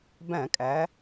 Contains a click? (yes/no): no